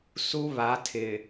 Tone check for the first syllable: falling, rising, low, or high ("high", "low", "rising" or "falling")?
high